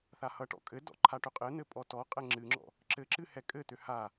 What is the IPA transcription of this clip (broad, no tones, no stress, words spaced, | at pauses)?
θahʌʈɔ̰ kʼɘdɔ̰ ǃʰaʈøqʼɘn̪ɘ pʼɔtɔqʼɛ ŋ͡ǁɨŋ͡ǁɔ̰ | ǁɘǁɨ hɛkʼɘt̪ø ha